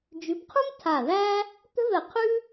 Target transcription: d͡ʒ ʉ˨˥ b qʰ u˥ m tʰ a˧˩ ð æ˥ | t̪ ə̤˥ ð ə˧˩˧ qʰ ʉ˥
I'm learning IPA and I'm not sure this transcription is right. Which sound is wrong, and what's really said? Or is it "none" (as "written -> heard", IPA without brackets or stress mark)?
none